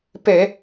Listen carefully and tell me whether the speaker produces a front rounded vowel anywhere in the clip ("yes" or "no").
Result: no